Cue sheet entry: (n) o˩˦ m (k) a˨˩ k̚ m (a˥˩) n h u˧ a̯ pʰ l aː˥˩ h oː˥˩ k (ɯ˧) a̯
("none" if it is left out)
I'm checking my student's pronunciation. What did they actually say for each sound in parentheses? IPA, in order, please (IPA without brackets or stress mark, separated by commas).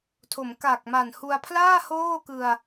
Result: tʰ, k, a˨˩, ɯ˧